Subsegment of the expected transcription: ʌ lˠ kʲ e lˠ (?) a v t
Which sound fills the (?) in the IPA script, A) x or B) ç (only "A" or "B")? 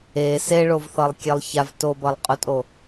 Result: B